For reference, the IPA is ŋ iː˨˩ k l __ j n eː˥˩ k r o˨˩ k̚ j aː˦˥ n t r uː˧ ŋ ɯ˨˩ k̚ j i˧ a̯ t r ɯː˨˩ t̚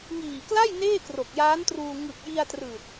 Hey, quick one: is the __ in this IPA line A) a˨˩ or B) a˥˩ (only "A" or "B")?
B